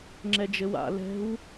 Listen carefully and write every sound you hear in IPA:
ŋ͡ǁ ɛ d͡ʒ ɘ w a̰ l ɛ̤ w

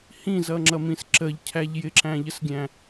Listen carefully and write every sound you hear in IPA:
h ĩ z ʌ ŋ͡ǁ ʌ m ĩ s ǁ ə ʎ cʰ æ ʎ j ɪ ǁ æ̃ ʎ ə s ɡʲ æ̃

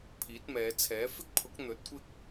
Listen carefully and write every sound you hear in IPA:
pʰ iː˨˥ t̚ m ɛː˨˧ t͡sʰ ɛː˨˥ f ɪ˥ k̚ pʰ ʊ˨˥ k̚ n̪ ɵ˨˥ t̚ kʷ ɪ˥ k̚

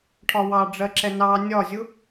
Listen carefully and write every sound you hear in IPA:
ʈʰ ɒ w ɑ ɖ͡ʐ ɜ ǁ ɛ n ɑ nʲ ɒ zʲ ʊ

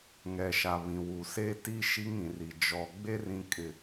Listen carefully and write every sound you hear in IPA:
ŋ ɛ˨ ʃ a˨ β ĩ˨ w u˨ s e˦ t i˦ ʃ i˦ ŋ ĩ˨ r i˨ d͡ʒ ɔ˨ ɡ͡b e˦ r ĩ˨ kʼ ɪ˨

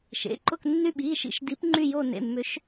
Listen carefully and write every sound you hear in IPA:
ʃ ḛ˩˧˩ ǃ ʊ˦˨ k nː y˦˨ ɓ i˩˧˩ ʃ ḭ˦˨ ʃ d i˨˥ p ŋ͡ǃ y˦˨ j o˦˨ n ḛ˩˧˩ mː ʏ˨˥ ʃ

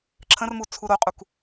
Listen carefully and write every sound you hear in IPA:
ǁʰ ə̃ r m u t͡sʰ u ɾ o qʼ u k

